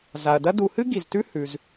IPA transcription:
za˩ɐ̯dɐ˦ du˨hɨ˥ ɡi˩ztʉ˦ hʉ˩z

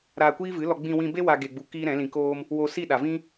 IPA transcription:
ɾaː˧kʷiː˦vɨ˨˦lɔ˧ ɡ͡bĩ˧wĩ˧be˦ wa˧ ɡe˧ɡ͡bu˧ kiː˦ɾɛ̃˨˦lĩ˧koː˦m | wo˧ si˦˨ɗa˨vĩ˦

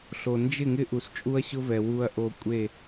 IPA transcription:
ɬo˨ nd͡ʒɪ˦˨ŋɪ˦ ʔu˨st͡ʃʼu˦ɐ̯ɕʊ˦vɛ˨ wu˨ɐ̯ʔo˨ kʷʼe˦˨

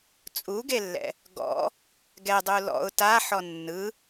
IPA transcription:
t͡sʼuɡelːɛ̰ | ɡɔ̰ | ɡɛdˤu lɔ̰ʊ̯ taħɔ nːɯ

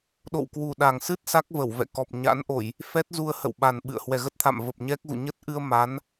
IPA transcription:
ɗo̰˧˨wkwu˨˩ɗa˨˩ŋsɨ˦˥t̚ sa˦˥k̚və˧˩w vɛ̰˧˨kɔ˨˩p̚ɲa̰˧˥nʔo˧˩˨j | fɛ˦˥t̚zu˧ə̯ hə̰˧˨wɓa˨˩n ɓɨ̰˧˨ə̯ hwɛ˨˩ɣə˦˥t̚t̪ʰa̰˧˨m və˨˩p̚ ɲɛ˦˥k̚ɣṵ˧˨ ɲə˦˥t̚ʔɨ˧ə̯ ma˨˦n

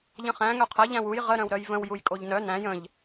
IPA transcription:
ʎə̃χæ̃ ŋœqʰɐ ʎæ̃wuj ʁə ɾœ̃wɾœjvə̃w jujkʼoʎnœ næ̃j ə̃ʎ

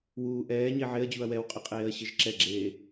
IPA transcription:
wuːʔɛːɲe ʕeɐ̯d͡ʑuɐ̯ wɛwqʼe qʼeːɐ̯ɕɘʒǁɛɡ͡ǁeː

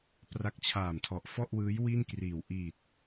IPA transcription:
pra˦˥k̚t͡ɕʰaː˨˩mtʰɔ˨˩ʔ fɔ˥˩ʔwɯː˦˥j wi˥˩nkriː˨˩w ʔiː˨˩t̚

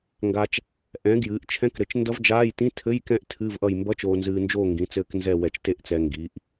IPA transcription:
ŋɡa˨t͡ʃ | ʔɛ̃˩˥ ɡjɨː˩˥ʔ t͡ʃʰɛ̃˧˥˧kɾɘ˩˥t͡ʃ ndʌ˦˥vd͡ʒaː˧˥˧j tĩ˧˥˧tʰɘ˧˥˧jkɛ̃˦˥ʔ tʰɨː˧˥˧vʔʌ˦˨j mbʌ˧˥˧t͡ʃoː˨nzɨː˨nd͡ʒoː˦˨ ŋɡĩ˩˥t͡sɘː˦˨knzɛ˦˨ wɛ˨t͡ʃte˦˨ʔt͡sɛ˨ ŋɡi˩˥ʔ

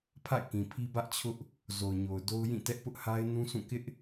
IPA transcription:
pʰa̰˦˨ɪ̯kĩ˨pʰi˦ bä˦ʔt͡ɕʰʊ˦ʔ | zo˨ʊ̯ɲo˨ʊ̯do˦ʊ̯ jĩ˦˨tɛ˦ʔ pʊ˦ʔha˦ɪ̯ nũ˦sʰũ˦˨ kɪ˦ʔ

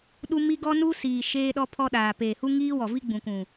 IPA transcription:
ɗu˦ mi˦ ɡɔ˦nu˦siː˨ ʃeː˦ɗɔ˦pʰɔ˦ɗaː˨ peː˨hu˦ ŋiː˦wɔ˨vi˦ ɡ͡bũ˨kũ˨

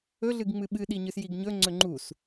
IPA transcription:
ɵɮɨɡ ŋ͡mɨɓɨɗi ɲɨsjiɡɲɵŋ͡ǀɵ ŋ͡ǃus

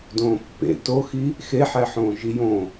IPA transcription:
dõːpːḛ toxi | xeħæħõː ʒijõ

